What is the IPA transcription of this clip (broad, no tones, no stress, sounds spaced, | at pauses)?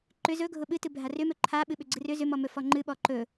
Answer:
ǃ ʏ z ɵ ɡʱ ʊ ɓ ɨ t ɨ bʱ a r ʏ m ɵ ǃʰ a ɓ ɨ ɓ ʏ ɡ͡ǀ ɨ r ʏ z ʏ m ɔ m ɵ f ɔ ŋ͡ǃ ɨ ɓ ɔ ǃ ɵ